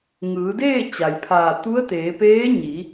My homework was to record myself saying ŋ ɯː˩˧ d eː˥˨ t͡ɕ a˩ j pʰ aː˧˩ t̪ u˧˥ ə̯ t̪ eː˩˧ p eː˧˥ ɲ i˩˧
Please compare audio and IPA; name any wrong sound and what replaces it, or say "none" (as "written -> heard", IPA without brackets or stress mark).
none